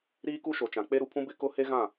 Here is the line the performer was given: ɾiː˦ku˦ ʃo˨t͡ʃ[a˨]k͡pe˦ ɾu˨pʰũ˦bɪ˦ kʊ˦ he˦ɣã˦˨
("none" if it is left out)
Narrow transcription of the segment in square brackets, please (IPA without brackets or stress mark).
ã˨